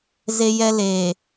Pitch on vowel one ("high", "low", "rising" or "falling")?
high